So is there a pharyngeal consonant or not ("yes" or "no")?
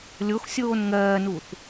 no